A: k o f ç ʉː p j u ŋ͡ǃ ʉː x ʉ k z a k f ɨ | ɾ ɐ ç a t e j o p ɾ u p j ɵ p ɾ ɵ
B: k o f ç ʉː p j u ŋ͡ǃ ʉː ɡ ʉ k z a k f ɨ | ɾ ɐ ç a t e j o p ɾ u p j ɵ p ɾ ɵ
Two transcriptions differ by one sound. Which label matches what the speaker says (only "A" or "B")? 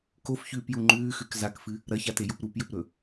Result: A